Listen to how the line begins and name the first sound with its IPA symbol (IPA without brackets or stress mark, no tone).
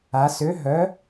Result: a